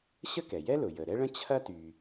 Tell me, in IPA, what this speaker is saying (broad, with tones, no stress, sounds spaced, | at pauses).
ɕ ə˥ k ɛ˩ j ɛ˥ l ʊ˩ j ə˩ ɾ ɛ˥ ɭ ə̃˥ t͡ɕʰ ɐ˥ t y˩